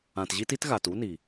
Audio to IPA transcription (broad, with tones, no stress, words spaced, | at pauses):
ã˨tʑi˦ti˦t ɣa˨tu˦ni˨